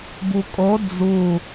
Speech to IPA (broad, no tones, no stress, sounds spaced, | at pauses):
b u kʼ o d͡z u